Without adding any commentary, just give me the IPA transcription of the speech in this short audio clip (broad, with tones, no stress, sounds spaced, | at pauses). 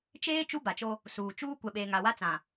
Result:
t͡ʃ eː˦ t͡ʃ u˦ b a˨ t͡ʃ o˦ | s uː˨ t͡ʃ uː˦ kʷ ɛ˨ ɓ eː˨ ŋ a˨ w a˦ t͡s ã˨